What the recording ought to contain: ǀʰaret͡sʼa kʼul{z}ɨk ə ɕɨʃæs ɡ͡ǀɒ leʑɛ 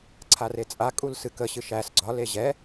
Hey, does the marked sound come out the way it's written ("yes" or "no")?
no